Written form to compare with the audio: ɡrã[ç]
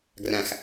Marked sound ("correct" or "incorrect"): incorrect